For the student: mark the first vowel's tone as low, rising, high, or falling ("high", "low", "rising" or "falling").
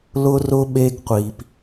high